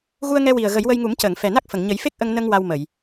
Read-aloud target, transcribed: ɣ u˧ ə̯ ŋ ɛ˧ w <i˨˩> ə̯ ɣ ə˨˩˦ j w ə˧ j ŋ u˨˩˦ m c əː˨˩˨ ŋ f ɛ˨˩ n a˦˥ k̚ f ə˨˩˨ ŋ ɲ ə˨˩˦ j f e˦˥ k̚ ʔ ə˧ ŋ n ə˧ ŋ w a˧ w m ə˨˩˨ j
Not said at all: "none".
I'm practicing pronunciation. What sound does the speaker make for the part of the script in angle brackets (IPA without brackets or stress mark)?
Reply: i˨˩